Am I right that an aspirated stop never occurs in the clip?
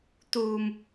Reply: yes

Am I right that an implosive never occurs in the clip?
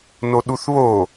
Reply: no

